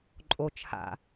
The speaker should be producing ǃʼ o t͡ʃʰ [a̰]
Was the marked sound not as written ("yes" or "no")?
no